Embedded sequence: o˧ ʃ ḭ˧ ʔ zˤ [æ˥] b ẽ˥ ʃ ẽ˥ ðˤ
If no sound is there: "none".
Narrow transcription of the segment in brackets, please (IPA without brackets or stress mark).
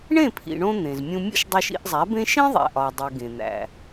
æ˩˥